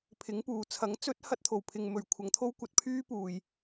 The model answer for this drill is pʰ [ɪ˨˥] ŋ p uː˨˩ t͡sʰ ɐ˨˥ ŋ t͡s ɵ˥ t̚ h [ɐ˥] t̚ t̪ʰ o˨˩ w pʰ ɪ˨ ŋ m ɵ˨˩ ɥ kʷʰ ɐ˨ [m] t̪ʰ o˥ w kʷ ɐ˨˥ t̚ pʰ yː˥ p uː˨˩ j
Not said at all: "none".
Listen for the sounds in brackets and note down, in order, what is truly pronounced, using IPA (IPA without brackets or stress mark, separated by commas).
ɪ˨˥, ɐ˥, ŋ